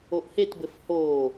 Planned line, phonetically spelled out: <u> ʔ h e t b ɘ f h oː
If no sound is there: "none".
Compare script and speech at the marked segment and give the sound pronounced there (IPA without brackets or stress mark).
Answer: o